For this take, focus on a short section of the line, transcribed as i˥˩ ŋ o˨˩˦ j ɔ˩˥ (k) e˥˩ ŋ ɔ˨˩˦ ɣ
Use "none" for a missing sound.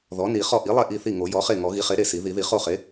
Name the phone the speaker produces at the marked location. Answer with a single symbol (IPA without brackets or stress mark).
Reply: χ